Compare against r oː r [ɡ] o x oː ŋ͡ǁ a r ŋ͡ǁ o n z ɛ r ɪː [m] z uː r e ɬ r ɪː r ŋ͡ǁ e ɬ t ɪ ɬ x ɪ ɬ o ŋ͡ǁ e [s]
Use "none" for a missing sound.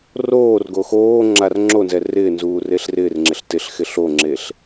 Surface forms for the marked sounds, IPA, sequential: ɡ, n, ɬ

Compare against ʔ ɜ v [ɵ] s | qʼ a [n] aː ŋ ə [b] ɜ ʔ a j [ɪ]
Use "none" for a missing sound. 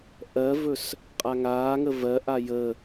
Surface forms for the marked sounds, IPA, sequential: ɵ, ŋ, v, ə

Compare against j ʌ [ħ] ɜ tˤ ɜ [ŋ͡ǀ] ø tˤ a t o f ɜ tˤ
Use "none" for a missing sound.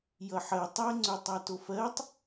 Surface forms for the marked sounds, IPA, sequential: ħ, ŋ͡ǀ

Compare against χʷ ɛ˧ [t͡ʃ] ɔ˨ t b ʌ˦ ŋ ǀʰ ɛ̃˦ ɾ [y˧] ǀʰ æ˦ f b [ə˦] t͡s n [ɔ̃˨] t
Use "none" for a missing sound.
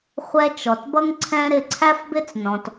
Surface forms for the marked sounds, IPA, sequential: t͡ʃ, ɪ˧, ɪ˦, ɔ̃˨

